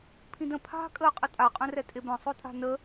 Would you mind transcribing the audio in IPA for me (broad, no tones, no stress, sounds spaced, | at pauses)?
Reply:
pʰ ĩ d ə̃ pʰ a̤ kʼ əː qʼ ə tʼ a qʼ œ̃ r ɛ tʼ e b œ̃ sˤ o tʼ a̤ n ə